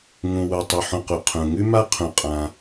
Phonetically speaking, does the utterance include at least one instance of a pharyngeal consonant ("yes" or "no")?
yes